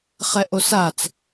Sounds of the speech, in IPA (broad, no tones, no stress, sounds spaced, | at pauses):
χ ɛ ʔ o s a t͡s